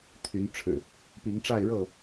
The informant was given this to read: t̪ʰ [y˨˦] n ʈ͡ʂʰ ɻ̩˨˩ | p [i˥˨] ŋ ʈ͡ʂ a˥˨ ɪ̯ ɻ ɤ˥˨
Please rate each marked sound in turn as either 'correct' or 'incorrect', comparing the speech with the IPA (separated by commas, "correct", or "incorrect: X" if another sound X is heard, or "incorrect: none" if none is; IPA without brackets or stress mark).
correct, incorrect: i˨˦